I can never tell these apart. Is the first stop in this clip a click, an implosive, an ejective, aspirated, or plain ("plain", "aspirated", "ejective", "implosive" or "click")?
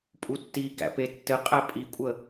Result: ejective